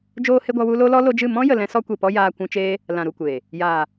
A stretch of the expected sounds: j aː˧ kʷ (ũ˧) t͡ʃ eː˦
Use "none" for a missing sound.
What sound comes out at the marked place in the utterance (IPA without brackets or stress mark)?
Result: ũ˧